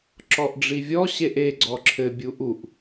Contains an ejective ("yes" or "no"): no